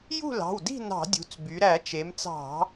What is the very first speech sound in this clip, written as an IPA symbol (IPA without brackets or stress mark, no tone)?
j